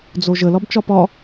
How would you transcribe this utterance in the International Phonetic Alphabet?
d͡zoʒə lɒbt͡ʃɒpɒ

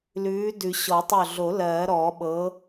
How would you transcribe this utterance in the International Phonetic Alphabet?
lʉː˨˥dʉ˨˩˦ ɕɔ˨˩˦tˤø˧˩ɮo˨˩˦ lɜː˨˩˦ɾɔː˨˩˦ɓɤː˨˥

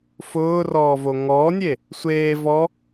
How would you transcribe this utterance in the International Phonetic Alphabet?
fʊːrɔː voŋɔːnʲe | sʷeː vɔ

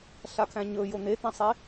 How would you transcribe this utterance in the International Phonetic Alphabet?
ɬakʰæ̃ɲɵ jon̪et̪æ̃sˤe

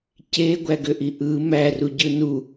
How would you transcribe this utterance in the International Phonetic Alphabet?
ceɡʷæɡøʔi ʔɯ mæruɟɯ nu

